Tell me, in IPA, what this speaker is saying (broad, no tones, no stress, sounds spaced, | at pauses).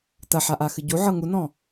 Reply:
t ɐ ħ a ʔ a x ɨ ɟ u ʕ ɤ ŋ u n ɔ̃